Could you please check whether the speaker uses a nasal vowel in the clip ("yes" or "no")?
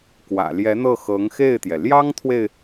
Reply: no